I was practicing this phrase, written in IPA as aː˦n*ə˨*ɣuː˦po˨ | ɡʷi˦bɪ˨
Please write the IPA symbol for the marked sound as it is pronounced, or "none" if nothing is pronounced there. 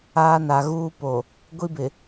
a˨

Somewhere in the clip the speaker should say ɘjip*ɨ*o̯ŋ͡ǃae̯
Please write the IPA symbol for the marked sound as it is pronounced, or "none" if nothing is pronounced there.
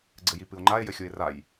ɨ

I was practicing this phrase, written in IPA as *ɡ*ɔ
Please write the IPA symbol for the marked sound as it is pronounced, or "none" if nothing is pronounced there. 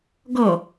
ɡ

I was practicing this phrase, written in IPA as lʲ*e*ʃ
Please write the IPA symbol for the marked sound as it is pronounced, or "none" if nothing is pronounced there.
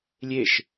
e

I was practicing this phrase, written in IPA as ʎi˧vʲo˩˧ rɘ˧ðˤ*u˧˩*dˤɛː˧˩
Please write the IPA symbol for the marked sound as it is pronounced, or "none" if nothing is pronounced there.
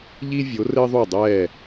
u˧˩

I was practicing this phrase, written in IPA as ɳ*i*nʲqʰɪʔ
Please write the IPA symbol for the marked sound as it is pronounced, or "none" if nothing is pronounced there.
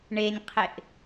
e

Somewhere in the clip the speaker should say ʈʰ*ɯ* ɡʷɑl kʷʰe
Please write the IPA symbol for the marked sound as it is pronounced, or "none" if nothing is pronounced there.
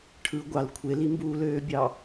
ɯ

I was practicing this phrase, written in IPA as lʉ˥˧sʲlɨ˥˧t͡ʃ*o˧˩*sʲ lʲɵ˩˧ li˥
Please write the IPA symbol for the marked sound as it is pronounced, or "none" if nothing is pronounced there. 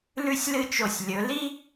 o˧˩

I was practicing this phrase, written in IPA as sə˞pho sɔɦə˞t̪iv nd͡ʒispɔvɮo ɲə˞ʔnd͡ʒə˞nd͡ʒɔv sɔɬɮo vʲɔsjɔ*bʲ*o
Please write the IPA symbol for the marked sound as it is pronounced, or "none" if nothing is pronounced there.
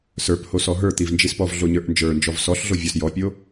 pʲ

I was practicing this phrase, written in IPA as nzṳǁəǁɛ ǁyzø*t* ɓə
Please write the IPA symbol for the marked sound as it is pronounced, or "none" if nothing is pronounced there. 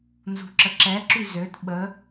t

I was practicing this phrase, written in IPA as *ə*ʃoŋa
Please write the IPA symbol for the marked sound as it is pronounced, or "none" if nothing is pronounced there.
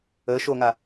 ə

